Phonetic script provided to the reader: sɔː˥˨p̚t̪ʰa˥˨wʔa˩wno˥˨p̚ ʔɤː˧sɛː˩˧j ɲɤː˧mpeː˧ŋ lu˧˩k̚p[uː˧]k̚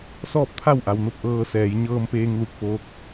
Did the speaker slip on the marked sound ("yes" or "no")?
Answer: yes